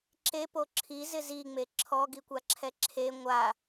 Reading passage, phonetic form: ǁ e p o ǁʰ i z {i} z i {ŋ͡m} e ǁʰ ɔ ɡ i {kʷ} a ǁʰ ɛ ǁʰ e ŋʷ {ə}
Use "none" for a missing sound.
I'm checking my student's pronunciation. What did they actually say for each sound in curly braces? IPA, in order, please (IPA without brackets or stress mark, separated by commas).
ɪ, ŋ͡m, kʷ, a